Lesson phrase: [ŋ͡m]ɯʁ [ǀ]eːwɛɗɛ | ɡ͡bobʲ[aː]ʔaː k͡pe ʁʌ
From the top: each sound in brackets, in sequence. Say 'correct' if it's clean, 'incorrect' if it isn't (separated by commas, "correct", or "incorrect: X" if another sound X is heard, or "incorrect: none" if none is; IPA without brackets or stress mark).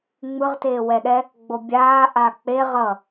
correct, incorrect: t, correct